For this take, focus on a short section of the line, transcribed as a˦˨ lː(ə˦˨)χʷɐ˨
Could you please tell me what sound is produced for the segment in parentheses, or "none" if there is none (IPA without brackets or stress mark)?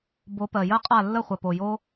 ə˦˨